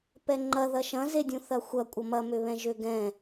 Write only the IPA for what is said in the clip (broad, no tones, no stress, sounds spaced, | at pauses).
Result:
p ɛ ŋ͡ǃ ɐ ð ɐ ʃ ɐ̃ z e dʲ ũ θ ɐ xʷ ɐ kʷʼ ʌ m ɐ m ø β ɛ̃ ʒ ø ɡ ɛ̃